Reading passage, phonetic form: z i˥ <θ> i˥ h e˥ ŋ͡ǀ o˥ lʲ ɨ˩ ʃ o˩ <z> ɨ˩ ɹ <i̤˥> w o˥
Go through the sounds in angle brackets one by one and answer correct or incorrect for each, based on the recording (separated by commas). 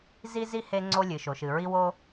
incorrect, incorrect, incorrect